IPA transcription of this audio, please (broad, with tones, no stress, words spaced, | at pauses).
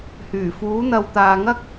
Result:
hyː˨˩fuː˨˥ n̪ɐ˨wt̪aː˨ŋɐ˥k̚